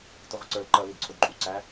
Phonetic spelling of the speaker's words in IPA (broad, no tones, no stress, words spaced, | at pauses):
tʊʁʊǀə˞l ǃʌ lidǀʰʊdǃʼu ǀæ